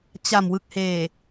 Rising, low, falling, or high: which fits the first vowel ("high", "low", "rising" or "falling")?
low